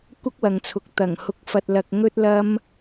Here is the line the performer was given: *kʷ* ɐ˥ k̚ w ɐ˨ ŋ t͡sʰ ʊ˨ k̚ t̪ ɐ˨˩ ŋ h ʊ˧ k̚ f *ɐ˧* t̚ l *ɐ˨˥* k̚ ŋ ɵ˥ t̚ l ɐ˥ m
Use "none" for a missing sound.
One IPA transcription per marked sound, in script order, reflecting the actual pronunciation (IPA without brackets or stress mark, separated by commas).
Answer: kʷ, ɐ˧, ɐ˧